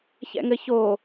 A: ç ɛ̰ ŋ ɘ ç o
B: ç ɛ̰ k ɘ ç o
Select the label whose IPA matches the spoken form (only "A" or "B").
A